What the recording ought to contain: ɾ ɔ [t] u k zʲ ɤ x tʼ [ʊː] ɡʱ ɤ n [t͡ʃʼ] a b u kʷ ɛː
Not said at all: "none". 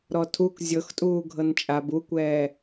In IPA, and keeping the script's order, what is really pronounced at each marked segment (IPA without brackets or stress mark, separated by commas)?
tʰ, uː, t͡ʃʼ